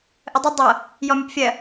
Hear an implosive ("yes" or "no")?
no